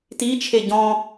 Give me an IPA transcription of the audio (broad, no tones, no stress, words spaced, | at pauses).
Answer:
ti t͡ʃʰeɟɔ̃